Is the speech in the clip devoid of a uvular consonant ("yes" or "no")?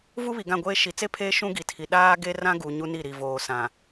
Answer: yes